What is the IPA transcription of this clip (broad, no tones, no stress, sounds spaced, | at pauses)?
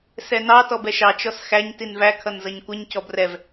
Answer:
s ɛ n ɑ t ɔ b ɛ ʃ ɑ t͡ʃ ɔ s x æ ɲ t i n v æ kʰ ʌ n z ʌ ɲ kʷ ʌ ɲ c ɔ b r ɛ v